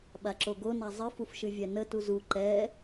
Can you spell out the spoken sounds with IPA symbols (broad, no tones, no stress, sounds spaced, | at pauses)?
ɓ a ǁ o ɡ o n a zˤ ɨ f u f ʃ ɨ vʲ ɛ n ə t u z u ǃ ɛ